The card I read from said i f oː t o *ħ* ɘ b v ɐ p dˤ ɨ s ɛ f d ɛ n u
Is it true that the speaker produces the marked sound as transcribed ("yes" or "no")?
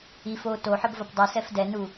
yes